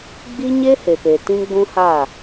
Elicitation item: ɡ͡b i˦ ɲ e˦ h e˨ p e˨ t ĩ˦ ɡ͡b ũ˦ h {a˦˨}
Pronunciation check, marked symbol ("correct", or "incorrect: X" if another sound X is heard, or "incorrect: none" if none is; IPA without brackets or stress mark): correct